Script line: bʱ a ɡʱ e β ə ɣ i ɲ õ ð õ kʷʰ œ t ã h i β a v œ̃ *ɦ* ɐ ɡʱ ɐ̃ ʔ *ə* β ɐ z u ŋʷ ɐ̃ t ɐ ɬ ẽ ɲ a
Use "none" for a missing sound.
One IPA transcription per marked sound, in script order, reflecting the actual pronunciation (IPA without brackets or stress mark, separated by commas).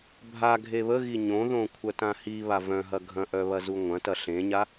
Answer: ɦ, œ